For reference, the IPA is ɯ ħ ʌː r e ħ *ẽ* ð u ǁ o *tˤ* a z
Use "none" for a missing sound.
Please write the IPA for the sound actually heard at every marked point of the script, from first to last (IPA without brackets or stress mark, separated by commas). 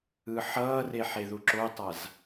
e, tˤ